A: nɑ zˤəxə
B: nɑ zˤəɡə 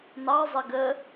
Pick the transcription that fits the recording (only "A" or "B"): B